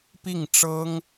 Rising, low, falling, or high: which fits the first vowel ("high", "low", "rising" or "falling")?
falling